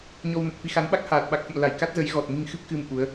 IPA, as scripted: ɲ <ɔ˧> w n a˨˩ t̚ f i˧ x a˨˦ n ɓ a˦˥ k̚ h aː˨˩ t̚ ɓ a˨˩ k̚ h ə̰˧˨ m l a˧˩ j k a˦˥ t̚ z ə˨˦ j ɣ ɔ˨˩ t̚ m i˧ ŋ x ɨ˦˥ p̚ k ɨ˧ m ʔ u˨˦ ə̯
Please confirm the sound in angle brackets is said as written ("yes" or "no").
yes